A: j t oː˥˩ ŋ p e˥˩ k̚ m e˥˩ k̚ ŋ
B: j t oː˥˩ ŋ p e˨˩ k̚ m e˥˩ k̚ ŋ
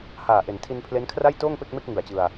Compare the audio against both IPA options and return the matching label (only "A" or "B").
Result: A